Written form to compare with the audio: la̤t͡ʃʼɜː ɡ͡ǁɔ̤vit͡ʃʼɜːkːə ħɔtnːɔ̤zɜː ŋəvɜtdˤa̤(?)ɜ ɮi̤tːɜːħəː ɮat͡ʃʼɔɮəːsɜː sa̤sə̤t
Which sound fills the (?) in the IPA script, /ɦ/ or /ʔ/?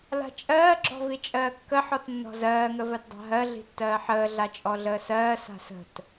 ɦ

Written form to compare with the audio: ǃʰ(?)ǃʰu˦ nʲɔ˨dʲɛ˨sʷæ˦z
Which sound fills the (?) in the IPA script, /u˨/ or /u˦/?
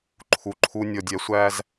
u˨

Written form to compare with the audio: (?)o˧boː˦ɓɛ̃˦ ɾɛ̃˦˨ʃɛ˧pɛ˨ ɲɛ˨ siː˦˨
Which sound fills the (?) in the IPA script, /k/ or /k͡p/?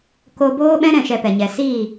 k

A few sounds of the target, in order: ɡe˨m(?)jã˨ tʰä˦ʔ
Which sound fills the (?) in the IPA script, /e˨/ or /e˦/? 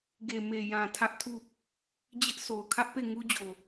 e˨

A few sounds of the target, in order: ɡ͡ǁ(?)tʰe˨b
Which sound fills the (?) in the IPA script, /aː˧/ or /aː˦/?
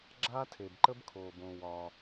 aː˦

